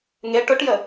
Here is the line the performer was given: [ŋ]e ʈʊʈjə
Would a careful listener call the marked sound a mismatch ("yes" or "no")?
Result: no